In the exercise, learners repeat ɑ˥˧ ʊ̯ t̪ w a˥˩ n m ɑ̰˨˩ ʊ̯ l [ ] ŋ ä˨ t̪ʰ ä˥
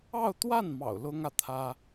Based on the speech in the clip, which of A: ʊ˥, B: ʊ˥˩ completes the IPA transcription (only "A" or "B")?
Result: A